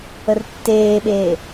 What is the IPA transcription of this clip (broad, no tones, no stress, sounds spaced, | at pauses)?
ə r tː eː ɓ eː